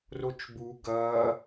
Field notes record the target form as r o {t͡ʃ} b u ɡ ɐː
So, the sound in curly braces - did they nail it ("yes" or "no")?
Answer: yes